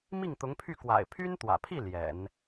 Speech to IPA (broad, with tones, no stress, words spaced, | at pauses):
mi˥˩ŋt̪ʊ˧˥ŋpʰy˥˩ kwa̰˨˩ɪ̯pʰy˥nt̪wä̰˨˩pʰi˥˩ ljɛ̰˨˩˦n